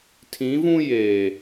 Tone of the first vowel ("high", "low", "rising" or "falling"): rising